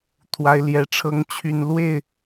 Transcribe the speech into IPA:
t̪ʰ w a˨˦ ɪ̯ l j ɛ˨˩ ʈ͡ʂʰ ɤ˨˦ ŋ t͡ɕʰ y˨˩ n l w e˥˨ ɪ̯

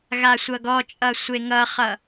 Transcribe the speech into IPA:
ɣ a sʷ ʌ ɡ ɔ t͡ʃʼ ʌ sʷ e ŋ ʌ χ ʌ

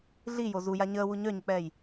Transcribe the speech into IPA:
ɮ i j o z u j a ɲ əː w u ɲ œ ɲ ə k͡p ɛː j

